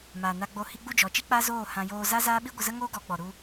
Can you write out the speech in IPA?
m aː˨ n a˧ ɡ͡b o˧ h i˧ ɡ͡b u˦˨ d͡ʒ ɔ˨ t͡ʃ i˦ k͡p a˦ z oː˦˨ h ã˧ j oː˧ z a˦ z aː˦ ɓ i˦ ɡʷ ə˧ z ə˦ ŋ oː˦ ɡ ɔ˨˦ ɡ͡b ɔ˨ ɾ u˧

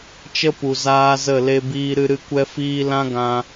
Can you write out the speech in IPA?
t͡ʃ ə˦ p u˨ z aː˦ z ə˦˨ l e˦ b iː˧ ɾ ɨ˧ ɾ ɨ˧ kʷ ɛ˦ f iː˦ l ã˦ ɡ ã˧

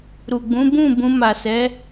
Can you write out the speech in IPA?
ɾ u˨ ɡ͡b ũ˨˦ b ũ˦˨ b ũ˧ m a˨ s ɛ˨˦

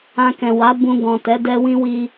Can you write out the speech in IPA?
ã˧ k ɛ̃˨ w a˨˦ b ũ˧ ɡ ɔ̃˨ t ɛ˨˦ d ɛ˧ w ĩ˦ w i˧

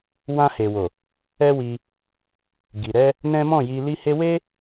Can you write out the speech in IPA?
w ã˧ h e˨ w o˨ | ɛ˦ w i˧ | ɡ i˨ ɾ ɛ˧ | n ɛ̃˦ m ɔ̃˦˨ j i˧ l i˧ h e˧ w e˦

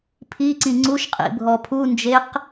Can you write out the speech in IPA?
pʰ i ǀ ĩ ŋ͡ǀ u ʃ qʼ ḭ bʱ ɔ pʰ u n d͡ʒ e q

